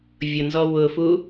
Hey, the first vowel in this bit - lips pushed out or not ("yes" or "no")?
yes